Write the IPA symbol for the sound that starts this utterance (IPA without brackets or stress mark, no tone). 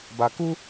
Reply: b